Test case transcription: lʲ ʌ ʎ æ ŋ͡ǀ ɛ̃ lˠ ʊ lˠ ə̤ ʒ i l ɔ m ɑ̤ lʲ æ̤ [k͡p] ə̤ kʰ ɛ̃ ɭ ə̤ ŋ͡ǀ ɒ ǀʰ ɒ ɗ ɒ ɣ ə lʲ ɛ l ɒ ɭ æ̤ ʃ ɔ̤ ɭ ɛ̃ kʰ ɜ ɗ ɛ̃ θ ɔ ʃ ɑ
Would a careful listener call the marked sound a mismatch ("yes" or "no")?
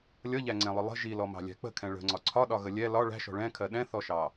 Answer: no